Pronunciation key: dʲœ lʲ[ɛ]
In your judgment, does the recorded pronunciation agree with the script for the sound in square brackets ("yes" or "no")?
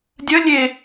no